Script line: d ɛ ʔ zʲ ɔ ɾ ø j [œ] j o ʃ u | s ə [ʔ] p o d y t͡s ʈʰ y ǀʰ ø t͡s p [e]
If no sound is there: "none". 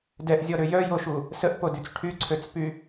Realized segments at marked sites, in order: œ, ʔ, y

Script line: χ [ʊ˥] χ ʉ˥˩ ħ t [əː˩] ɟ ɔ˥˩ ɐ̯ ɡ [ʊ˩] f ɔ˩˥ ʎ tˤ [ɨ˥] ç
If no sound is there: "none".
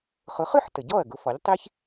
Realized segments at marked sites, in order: ʊ˩˥, ə˩, ʊ˩˥, i˥

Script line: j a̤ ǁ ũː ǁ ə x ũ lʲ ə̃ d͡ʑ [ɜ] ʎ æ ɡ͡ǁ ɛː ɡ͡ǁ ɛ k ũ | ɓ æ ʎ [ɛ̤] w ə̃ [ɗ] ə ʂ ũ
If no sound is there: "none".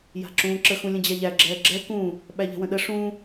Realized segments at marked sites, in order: æ, ɛ̤, ɗ

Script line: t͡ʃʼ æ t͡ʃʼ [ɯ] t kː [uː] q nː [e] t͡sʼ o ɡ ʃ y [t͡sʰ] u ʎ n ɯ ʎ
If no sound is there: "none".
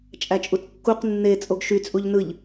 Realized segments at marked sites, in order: u, u, e, t͡sʼ

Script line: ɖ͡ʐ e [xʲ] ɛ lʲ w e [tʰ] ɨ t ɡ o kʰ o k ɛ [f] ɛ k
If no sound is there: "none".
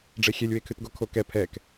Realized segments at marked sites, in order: xʲ, kʰ, pʰ

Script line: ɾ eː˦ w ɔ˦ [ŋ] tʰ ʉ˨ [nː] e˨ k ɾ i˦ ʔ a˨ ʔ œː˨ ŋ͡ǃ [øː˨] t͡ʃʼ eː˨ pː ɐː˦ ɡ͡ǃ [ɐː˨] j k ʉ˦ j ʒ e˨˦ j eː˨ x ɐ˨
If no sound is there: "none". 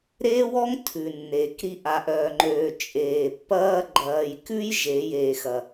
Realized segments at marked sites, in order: ŋ, nː, øː˨, ɐː˨

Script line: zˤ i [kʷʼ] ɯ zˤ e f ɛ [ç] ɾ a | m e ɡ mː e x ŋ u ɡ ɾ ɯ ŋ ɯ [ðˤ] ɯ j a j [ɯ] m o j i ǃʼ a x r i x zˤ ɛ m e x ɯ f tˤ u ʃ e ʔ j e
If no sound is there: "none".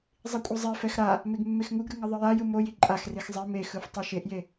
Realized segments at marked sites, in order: kʷʼ, x, ðˤ, ɯ

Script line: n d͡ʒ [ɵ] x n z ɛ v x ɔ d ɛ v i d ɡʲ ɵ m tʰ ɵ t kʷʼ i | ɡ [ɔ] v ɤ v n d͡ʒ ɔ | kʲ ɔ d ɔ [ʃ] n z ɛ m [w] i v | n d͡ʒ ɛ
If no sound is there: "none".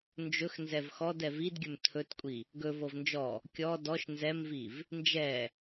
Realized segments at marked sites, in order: ɵ, ɵ, ʃ, v

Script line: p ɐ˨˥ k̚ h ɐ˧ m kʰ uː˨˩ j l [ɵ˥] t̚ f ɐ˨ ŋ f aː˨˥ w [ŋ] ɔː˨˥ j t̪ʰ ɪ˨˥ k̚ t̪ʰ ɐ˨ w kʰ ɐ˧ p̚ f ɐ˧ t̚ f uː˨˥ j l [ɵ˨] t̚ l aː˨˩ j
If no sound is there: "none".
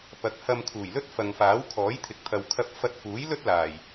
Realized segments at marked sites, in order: ɵ˥, kʰ, ɵ˥

